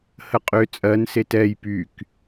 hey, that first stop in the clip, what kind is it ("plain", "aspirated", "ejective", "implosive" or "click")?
ejective